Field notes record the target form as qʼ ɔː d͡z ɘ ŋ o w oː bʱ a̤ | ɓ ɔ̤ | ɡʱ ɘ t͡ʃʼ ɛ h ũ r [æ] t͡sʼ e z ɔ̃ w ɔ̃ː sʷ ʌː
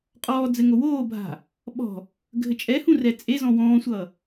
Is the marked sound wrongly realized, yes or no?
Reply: yes